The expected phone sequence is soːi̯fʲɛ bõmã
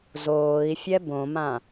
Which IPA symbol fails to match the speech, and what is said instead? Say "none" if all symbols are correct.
s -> z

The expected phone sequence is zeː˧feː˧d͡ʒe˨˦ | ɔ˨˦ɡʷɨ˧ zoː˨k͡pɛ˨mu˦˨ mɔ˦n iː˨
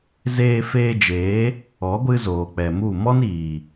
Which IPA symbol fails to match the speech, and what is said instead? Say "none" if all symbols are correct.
e˨˦ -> eː˨˦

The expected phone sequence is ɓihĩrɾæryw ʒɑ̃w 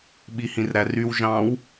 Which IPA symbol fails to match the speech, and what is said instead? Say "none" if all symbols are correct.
none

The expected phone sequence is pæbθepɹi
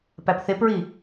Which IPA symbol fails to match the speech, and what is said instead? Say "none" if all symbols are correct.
b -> p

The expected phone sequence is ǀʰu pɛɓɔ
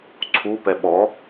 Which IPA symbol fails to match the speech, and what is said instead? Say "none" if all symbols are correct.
none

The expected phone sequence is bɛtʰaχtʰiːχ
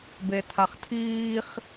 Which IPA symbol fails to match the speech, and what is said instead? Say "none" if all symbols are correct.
ɛ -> e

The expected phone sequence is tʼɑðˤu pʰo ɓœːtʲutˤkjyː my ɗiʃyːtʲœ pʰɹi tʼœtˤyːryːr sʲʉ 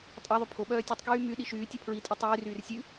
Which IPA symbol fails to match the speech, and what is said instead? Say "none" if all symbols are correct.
none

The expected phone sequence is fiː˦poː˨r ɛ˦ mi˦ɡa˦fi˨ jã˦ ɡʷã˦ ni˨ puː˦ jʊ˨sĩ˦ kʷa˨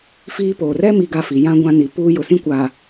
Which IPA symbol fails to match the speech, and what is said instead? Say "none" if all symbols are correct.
none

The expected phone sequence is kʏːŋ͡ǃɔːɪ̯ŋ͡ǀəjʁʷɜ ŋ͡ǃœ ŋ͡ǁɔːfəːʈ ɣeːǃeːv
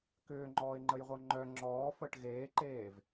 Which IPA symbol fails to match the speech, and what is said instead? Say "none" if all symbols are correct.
ŋ͡ǀ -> ŋ͡ǃ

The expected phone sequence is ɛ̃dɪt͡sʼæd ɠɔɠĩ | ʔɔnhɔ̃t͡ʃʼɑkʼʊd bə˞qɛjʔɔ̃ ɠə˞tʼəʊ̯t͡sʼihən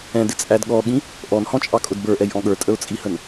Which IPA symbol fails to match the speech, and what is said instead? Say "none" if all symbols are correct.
q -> ʔ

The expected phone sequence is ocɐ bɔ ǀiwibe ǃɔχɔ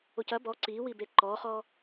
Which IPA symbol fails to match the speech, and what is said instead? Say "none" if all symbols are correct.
none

